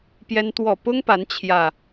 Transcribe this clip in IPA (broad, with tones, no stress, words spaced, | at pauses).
pjɛ˦nt̪wɔ˥˨ pʊ˦ŋ pa˨˦nt͡ɕʰjä˨˩